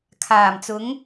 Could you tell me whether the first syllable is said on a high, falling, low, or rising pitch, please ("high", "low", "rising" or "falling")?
low